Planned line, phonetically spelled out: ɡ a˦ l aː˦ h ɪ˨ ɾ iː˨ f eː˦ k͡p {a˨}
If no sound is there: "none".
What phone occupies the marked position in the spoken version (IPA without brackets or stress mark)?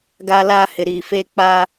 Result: a˦